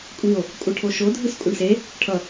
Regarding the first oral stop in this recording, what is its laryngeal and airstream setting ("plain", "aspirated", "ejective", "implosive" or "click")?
ejective